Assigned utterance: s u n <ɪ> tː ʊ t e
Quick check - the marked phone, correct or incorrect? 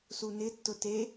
correct